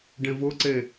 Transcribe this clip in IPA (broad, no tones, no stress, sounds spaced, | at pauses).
ɖ ẽ v ʊ ǀ e